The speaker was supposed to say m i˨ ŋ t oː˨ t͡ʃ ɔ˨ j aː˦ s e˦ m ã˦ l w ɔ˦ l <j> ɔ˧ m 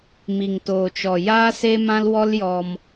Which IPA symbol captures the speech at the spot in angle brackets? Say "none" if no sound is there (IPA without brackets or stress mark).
j